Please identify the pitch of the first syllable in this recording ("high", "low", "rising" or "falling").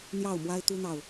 falling